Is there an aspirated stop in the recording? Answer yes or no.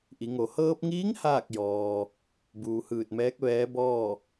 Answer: no